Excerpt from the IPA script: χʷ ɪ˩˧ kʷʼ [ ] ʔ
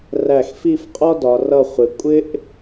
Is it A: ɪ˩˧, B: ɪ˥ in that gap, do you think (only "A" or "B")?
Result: B